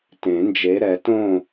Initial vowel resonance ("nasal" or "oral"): nasal